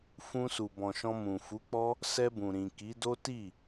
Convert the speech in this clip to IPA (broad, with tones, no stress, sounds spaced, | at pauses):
f ũ˧ s u˨ b ɔ̃˨ ʃ ɔ̃˧ m ũ˨ f u˨˦ k͡p ɔ˦ | s ɛ˧ b ũ˨ ɾ ĩ˨ k i˨˦ d o˦ t i˦˨